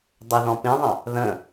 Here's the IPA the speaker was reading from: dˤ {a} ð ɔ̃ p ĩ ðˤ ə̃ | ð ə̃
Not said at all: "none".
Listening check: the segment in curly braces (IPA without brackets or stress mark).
ə